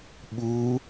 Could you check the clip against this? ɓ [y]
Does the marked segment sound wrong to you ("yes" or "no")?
yes